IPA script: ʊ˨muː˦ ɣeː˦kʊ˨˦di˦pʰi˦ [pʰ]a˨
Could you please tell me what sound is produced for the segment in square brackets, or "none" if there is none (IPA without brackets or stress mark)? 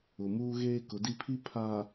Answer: pʰ